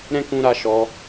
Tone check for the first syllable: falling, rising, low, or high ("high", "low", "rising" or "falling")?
high